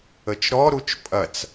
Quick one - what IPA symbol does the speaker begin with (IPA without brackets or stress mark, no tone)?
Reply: ə